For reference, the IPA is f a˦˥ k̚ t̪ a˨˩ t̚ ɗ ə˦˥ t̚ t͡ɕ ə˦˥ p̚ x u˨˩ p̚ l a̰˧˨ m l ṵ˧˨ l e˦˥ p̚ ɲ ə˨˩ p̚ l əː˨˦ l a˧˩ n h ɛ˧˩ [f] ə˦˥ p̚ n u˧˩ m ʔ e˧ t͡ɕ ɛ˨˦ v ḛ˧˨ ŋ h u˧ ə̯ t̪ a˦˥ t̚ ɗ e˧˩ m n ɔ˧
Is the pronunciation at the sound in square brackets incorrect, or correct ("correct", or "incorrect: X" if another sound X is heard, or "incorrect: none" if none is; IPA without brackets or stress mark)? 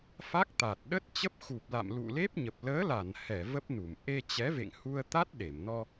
incorrect: v